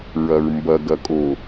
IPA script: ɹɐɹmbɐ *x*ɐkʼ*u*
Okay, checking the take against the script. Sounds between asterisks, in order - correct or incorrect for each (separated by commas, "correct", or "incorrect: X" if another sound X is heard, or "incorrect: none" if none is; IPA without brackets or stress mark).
incorrect: ɡ, incorrect: o